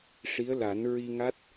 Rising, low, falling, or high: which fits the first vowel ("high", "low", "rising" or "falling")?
rising